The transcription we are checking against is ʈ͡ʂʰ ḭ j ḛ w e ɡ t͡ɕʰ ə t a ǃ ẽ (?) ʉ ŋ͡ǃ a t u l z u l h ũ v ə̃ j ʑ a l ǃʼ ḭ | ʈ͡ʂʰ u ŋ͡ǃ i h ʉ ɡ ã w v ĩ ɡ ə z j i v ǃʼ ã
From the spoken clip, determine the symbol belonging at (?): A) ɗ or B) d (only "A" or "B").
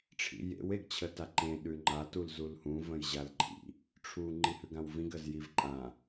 A